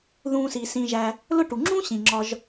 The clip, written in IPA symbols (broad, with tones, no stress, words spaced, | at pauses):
ðũː˨siː˩ sĩ˨ʒæ˨ | lʊ˦ʈu˩ŋ͡ǁũː˥ ɕĩ˩ŋ͡ǁɒ˨ʒ